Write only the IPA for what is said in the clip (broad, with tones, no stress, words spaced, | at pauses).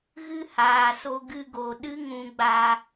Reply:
ɣɨ˦haː˨so˧ ɡɨ˧ɡo˨ ɗɨ˦ŋũ˧ɡ͡ba˧